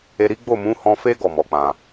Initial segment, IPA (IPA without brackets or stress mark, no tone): e